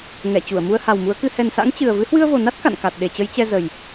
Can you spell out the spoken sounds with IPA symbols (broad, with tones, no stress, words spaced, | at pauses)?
ŋɛ˧˩ t͡ɕu˧˩ə̯mu˧ə̯ ha˨˩wmu˨˦ə̯kɨ˧ hɛ˨˩nsa̰˧˥ŋ t͡ɕɨ˨˩ə̯ vɨ˨˦hwɨ˧ə̯vo˨˩na˦˥t̚ ka̰˧˨nka˨˩t̚ ɗe˨˩t͡ɕə˨˦j t͡ɕɛ˧ zə˨˩j